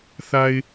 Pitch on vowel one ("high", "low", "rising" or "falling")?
low